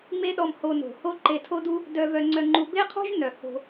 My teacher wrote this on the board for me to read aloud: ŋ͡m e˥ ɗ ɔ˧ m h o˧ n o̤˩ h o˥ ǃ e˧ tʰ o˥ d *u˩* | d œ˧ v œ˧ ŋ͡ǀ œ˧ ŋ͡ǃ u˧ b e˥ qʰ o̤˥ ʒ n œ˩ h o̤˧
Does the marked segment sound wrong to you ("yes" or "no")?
yes